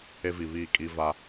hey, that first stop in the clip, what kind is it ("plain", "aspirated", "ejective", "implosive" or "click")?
ejective